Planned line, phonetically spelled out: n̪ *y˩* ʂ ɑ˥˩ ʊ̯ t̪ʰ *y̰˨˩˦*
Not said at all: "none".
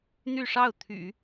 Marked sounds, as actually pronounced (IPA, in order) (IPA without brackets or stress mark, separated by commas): y˥˧, y̰˨˩˦